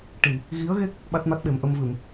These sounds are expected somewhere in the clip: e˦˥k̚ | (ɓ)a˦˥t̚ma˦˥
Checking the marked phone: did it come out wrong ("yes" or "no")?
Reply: no